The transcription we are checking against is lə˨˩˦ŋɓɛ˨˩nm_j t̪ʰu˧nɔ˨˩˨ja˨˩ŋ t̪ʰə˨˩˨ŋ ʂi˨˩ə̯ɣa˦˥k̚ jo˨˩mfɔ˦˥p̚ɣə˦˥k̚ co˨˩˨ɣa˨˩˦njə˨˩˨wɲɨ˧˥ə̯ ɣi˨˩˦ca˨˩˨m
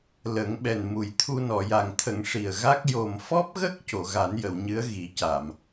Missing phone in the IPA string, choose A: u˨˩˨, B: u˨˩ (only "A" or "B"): B